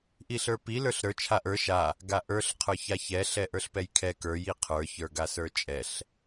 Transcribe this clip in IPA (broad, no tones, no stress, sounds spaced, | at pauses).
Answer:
ʔ i ɬ ə˞ p i l ə˞ ɬ ɾ ə˞ t͡ʃʰ a ʔ ə˞ ʃ a | ɡ a ʔ ə˞ ɬ qʰ ə˞ ç a ç ɛ ɬ ɛ ʔ ə˞ ɬ p ɛ j kʰ ɛ k ə˞ j i qʰ ə˞ ç ə˞ ɡ a s ə˞ t͡ʃʼ ɛ ɬ